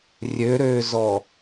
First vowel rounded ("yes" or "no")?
yes